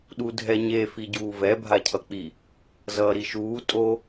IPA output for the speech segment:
ɗ u dʱ ɛ ɲ e f i ɟ uː v ɛ bʱ a cʰ ʌ k͡p i | z ʌː ɾ i ʃ uː tʼ o

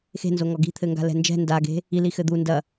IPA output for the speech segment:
x e̤ n z o ŋ ɔ ɡ i̤ t̪ʰ ɘ ŋ ɡ a̤ l ɛ̤ n d͡ʒ ɛ̤ n d a ɡ e̤ | i l i x ɘ d̪ u n d ɐ

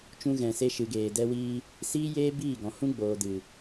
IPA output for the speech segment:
t͡ʃ ũ˧ ɣ ɛ̃˨ s e˧ ʃ ɨ˨ ɡ eː˨ d ɛ˦ w iː˦ | s iː˦ j eː˦ b iː˦˨ ɡ ɔ̃˨ h ũ˦ ɡ͡b oː˨ d ɨ˨

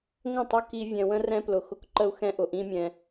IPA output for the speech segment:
ŋ ə̃˦˨ tˤ ʊ˦ k i˧ vʲ ɛ̃˧ w ə̃˦ r ɛ̃˦ p l ʊ˧ x ʊ˦ k ǃ ə˦ u̯ x ɛ̃˦ ʔ ʊ˧ ʔ ĩ˦ mʲ ɛ̃˧

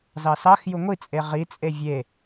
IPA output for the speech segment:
z ɑ s ɑ x j u ŋʷ i t͡sʼ e ʁ i t͡sʼ e vʲ e

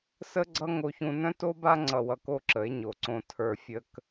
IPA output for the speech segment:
s ə˦ ɡ͡ǀ ʌ˦ ŋ o˧ ç ũ˧ n œ̃˦ t o˦ b a˦ ŋ͡ǀ ʌ˧ w ʌ˧ k o˦˨ ǁ ə˨˦ e̯ ɲ o˨ ǀ õ˧ tʰ ə˞˧ fʲ ə˦ k

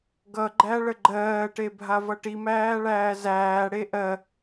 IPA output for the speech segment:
ɡ ʌ ɡ͡ǃ æ ɭ ə ɡ͡ǃ ɜː ʈ e bʱ a v ʌ ʈ i m æː ɭ æː z æː ɽ e ʔ ɜ

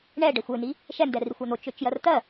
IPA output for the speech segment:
ɳ ɛ ɖ ɛ xʷ ø n i | ʃ ɛ n d ɛ r i xʷ a n̪ o t͡ʃ ø t͡ʃ j ɜ r t̪ ɜ

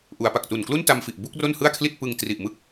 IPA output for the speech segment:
ʔ u˩˦ a̯ p a˨˩ k̚ t u˨˩ n k l u˥˩ n t a˧ m f i˨˩ ʔ b u˥˩ k̚ r o˥˩ n h ɯ˥˩ a̯ kʰ l i˥˩ t̚ p ɯ˧ ŋ t r i˨˩ ʔ m ɯ˥˩ k̚

